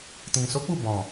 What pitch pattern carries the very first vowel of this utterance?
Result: low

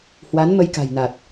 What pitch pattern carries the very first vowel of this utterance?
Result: rising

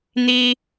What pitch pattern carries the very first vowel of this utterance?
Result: high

